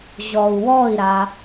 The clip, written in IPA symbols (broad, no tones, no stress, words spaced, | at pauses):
ʑɔu̯wɔi̯ɾa